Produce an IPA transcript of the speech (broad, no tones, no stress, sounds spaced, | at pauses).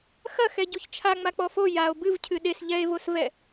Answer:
x ɐ x ɛ ɟ u ç t͡ʃʰ a ŋ͡m a k͡p ɔ f o j a o̯ b ɨ v cʰ ɨ ɗ e s ʎ ɛ e̯ v o s v ɛ